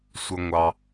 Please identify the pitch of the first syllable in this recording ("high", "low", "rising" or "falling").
low